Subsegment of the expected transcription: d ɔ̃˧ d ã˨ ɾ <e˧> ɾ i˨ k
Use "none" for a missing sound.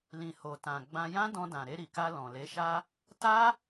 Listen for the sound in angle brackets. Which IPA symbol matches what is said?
e˧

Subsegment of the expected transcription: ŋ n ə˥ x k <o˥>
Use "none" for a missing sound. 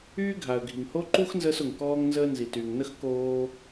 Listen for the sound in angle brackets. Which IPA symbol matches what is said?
oː˥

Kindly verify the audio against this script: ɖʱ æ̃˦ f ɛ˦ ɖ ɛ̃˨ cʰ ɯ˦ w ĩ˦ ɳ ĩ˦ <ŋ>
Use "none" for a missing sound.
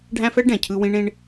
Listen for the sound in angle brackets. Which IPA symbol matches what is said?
ɳ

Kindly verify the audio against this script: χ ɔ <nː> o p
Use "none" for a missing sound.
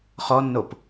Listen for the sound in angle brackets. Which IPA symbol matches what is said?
nː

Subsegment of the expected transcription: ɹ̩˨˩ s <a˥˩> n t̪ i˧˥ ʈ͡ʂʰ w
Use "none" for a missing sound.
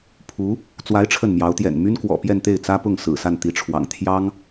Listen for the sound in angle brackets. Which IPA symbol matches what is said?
a˥˩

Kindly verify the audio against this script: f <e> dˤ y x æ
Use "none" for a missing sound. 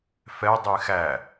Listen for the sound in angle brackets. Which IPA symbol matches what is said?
ɛ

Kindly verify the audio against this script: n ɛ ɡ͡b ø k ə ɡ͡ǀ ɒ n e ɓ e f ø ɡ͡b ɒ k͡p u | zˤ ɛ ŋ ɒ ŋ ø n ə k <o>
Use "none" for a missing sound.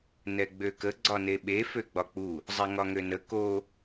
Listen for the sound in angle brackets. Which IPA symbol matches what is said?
o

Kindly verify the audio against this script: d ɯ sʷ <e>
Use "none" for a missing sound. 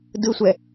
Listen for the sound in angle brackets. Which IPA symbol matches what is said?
ɛ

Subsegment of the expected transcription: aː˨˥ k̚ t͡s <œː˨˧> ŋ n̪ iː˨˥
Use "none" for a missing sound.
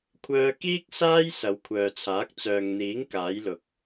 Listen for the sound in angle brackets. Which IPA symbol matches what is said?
œː˨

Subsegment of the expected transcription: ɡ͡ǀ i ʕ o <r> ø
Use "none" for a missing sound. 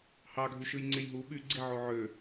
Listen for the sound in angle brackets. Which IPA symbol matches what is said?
ʕ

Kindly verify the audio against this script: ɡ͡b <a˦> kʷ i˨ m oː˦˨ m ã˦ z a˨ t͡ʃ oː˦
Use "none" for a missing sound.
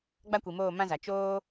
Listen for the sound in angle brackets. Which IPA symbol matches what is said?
a˦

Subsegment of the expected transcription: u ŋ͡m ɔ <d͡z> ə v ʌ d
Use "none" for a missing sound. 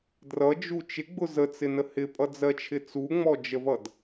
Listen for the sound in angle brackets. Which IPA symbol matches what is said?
d͡ʒ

